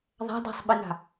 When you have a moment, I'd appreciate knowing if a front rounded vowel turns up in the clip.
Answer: no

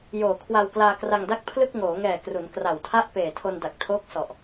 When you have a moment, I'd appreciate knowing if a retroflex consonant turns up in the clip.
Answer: no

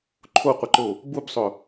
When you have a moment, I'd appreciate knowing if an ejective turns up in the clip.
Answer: no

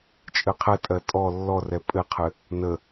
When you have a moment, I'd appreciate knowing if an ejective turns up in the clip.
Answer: yes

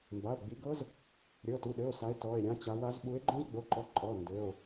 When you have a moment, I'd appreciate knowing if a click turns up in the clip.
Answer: yes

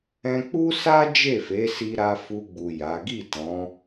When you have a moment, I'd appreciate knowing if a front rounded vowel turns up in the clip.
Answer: no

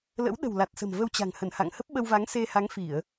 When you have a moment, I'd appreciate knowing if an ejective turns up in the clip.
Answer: no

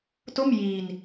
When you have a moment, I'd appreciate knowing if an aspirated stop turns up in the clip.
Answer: no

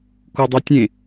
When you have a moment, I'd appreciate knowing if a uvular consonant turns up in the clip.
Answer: no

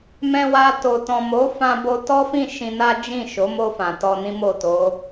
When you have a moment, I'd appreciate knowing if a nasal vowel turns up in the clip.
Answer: yes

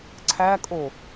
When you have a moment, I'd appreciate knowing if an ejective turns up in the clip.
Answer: yes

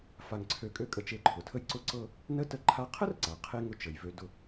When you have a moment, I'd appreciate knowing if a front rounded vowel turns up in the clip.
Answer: yes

